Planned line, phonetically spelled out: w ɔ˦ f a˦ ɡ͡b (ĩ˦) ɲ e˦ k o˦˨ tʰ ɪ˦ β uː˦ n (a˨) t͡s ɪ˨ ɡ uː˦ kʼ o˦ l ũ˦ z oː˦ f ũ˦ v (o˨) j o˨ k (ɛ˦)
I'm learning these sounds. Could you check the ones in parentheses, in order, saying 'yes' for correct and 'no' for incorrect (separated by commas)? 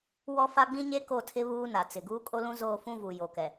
yes, yes, no, no